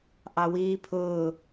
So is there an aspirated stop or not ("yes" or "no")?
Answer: yes